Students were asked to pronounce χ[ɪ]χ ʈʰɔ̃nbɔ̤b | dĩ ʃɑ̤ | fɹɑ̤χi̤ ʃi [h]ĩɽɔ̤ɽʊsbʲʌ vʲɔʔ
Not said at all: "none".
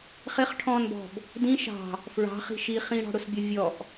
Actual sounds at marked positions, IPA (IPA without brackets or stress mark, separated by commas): ɪ, χ